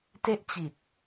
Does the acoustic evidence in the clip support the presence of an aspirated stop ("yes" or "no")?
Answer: no